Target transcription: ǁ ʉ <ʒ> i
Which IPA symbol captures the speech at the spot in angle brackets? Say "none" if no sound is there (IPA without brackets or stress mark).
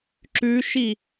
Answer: ʃ